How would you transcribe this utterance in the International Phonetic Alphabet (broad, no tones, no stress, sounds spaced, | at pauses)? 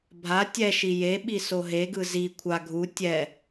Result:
bʱ a tʲ ɛ ʃ i j e ɓ i s o ɦ e ɡ ɯ z i kʷʰ a ɡʱ u tʲ ɛ